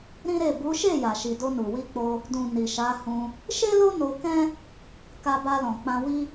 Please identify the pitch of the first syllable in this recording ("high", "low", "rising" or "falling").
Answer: high